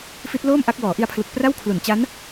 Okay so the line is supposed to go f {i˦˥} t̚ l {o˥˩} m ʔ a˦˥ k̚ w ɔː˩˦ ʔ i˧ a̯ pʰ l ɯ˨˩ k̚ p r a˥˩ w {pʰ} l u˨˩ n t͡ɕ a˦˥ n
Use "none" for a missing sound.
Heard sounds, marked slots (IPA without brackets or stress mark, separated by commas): i˦˥, oː˥˩, kʰ